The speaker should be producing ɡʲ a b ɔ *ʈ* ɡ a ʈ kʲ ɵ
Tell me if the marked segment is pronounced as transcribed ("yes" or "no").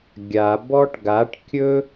yes